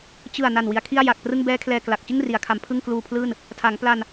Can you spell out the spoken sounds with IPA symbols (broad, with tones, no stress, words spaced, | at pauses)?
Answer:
t͡ɕɯ˨˩a̯ na˨˩nwi˩˦a̯kʰi˥˩a̯ ja˨˩k̚prɯ˥˩ŋ bɛː˦˥kʰlɛː˨˩ kla˨˩k̚ t͡ɕɯ˥˩ŋri˩˦a̯kʰa˩˦m pʰɯ˥˩ŋkluː˧pʰlɯː˥˩n | tʰa˩˦ŋpla˧n